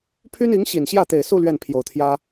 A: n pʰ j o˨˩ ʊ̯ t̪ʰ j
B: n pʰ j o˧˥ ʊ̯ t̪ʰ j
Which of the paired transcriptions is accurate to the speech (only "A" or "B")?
A